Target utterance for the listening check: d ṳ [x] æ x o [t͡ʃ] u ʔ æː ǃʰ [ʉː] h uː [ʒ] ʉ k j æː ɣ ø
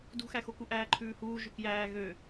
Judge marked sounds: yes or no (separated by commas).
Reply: yes, no, yes, yes